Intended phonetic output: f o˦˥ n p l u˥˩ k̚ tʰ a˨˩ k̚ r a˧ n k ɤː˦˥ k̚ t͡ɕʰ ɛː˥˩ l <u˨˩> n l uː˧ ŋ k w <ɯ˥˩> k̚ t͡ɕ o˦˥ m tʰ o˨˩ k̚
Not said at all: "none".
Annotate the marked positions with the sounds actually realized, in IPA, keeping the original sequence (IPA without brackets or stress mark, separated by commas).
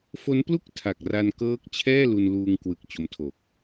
u˧, ɯ˨˩